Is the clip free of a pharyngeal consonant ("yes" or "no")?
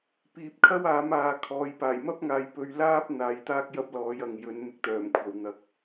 yes